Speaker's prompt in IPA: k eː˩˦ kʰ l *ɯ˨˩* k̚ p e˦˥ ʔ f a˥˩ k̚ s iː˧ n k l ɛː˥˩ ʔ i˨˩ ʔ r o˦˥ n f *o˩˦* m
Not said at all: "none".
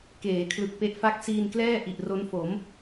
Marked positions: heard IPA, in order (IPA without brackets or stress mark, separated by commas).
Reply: ɯ˨˩, o˩˦